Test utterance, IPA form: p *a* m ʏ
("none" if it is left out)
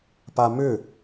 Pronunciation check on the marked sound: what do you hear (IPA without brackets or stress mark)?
a